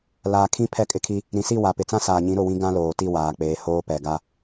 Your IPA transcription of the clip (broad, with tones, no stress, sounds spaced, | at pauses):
l aː˨ kʰ ĩ˦ pʰ ɛ˦ kʼ ɪ˦ kʰ i˦ | ɾ ĩ˨ s i˦˨ w a˨ p ɪ˨ t͡s ã˦ s aː˨ ɲ ĩ˨˦ ɾ ʊ˦˨ w ĩ˦ ɡ ã˦ l oː˨ t i˦˨ w aː˨ k͡p eː˨ h oː˦ p ɛ˨ ɡ a˦